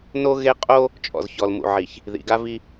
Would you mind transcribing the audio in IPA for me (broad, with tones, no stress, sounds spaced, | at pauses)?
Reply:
n o˦ ɣ e˦ qʼ o˦ | t͡ʃʼ ɔ̰˨ z ç ɔ˨ l m ṵ˨ ʕ i˨ ç | ð ḭ˨ ɡ a˦ v i˦